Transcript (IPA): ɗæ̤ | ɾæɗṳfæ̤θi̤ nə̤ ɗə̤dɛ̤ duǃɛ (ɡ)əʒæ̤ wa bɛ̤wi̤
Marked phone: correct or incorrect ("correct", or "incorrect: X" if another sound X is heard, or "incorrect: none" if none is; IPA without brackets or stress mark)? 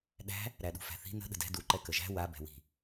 incorrect: k